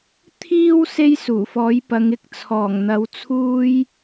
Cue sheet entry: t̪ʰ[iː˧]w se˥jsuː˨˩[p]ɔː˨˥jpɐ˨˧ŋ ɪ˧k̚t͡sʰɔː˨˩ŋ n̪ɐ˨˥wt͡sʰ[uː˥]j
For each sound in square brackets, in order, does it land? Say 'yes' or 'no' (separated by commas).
yes, no, yes